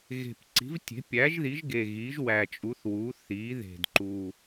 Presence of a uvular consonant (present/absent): absent